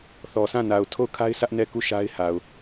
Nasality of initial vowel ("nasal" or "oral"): oral